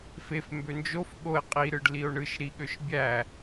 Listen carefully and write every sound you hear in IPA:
fef mbønd͡ʒof ɠoe̯ qʼi ɾɯɖlio̯ɳɯʃ ɾiɠøʃbʲæ

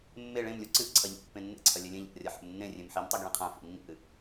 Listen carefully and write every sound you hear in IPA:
mːe ɭẽmlʲu ǀɨʔ ǀʰɐʎḛ pːẽnːḛǀʰɐ lʲelʲẽʎa̰ʔrʲɐ ħḛmnːẽ rʲẽmħimtˤiɡ ɭĩqʰã fḭnːḭʔɨ

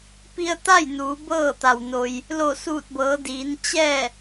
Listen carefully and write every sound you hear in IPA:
pi˧ə̯t̪a˥˨j nuː˩˧bɤː˥˨ t̪a˩wno˧j | lo˧˩suː˧˩t̚bɤː˩˧diː˩˧n t͡ɕɛː˥˨

